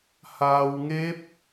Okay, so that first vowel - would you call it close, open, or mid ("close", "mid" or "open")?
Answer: open